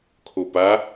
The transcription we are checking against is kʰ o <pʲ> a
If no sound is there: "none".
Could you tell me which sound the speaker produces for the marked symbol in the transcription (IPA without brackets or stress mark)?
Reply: p